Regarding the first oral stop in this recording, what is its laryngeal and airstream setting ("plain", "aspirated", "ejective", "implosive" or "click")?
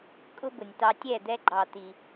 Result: ejective